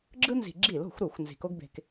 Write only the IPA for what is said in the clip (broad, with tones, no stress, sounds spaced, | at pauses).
ɡ͡ǁ ɯ˥ n z i̤˧˩˧ ɡ͡ǁ i˧˩˧ l o̤˧˩˧ xʷ ɾ u˧˩˧ xʷ n z i̤˨˩ k o˥ ɡ b e̤˧ k